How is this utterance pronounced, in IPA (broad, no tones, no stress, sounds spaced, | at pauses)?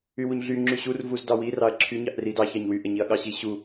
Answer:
y w u ɲ ɮ y ŋ͡ǁ y ɕ u r v u z d ɑ w i r ɑ ɐ̯ ǁʰ y ɲ ɑ ʔ r i d ɑ ç ɑ ɲ w y ʔ ɛ ɲ i ɐ̯ ɠ ɑ ɕ i ɕ u